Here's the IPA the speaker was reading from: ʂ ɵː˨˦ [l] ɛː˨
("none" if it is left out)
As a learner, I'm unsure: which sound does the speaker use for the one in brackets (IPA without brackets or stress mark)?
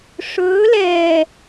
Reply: l